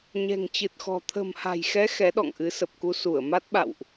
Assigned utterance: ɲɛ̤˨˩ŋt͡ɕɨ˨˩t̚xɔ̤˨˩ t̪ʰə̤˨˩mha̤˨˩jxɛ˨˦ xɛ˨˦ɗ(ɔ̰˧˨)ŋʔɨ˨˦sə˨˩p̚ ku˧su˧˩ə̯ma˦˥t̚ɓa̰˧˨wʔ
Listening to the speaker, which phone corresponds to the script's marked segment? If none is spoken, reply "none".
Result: ɔ̰˧˨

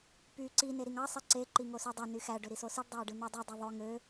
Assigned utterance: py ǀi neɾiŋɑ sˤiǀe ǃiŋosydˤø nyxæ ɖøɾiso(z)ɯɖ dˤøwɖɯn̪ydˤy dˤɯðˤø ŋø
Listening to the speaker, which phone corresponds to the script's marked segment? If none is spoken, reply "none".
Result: s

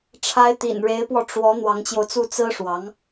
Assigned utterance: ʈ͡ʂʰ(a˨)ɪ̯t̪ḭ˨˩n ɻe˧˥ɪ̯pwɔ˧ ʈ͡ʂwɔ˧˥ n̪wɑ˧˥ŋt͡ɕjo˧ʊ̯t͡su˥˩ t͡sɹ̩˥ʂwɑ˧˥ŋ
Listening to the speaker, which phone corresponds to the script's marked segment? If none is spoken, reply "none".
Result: a˧˥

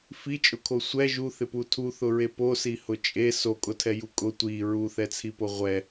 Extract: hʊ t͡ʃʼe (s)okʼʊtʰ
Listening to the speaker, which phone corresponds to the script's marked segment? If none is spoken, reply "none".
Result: s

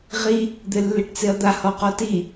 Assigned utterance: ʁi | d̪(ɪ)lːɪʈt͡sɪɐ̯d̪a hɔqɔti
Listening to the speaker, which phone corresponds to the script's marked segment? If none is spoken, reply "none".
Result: ɪ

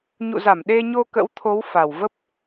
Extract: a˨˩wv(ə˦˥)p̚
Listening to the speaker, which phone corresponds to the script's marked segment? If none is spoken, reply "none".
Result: ə˦˥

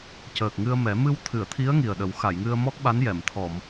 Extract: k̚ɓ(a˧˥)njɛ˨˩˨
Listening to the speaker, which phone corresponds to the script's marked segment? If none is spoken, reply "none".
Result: a˧˥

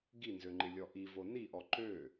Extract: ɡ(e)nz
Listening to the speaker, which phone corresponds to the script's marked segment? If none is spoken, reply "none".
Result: i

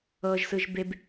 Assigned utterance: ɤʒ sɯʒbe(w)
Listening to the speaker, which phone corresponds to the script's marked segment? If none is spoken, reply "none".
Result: b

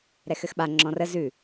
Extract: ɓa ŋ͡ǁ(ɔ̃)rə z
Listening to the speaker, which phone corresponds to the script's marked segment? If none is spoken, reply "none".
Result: ɔ̃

